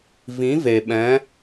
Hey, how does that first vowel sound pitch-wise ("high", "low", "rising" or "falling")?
rising